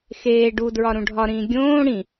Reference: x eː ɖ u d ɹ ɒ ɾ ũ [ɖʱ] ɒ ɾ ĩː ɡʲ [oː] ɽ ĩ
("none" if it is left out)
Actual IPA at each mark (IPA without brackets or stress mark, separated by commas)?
ɖʱ, õː